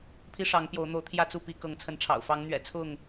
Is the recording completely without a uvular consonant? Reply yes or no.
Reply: yes